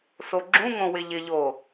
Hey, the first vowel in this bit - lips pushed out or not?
yes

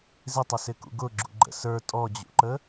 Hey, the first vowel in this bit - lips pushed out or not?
no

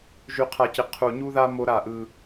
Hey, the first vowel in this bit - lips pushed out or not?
yes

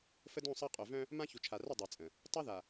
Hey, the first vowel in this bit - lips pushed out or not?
no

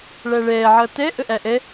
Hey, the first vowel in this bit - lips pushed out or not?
no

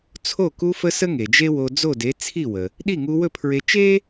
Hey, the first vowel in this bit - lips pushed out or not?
yes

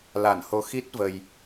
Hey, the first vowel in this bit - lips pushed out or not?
no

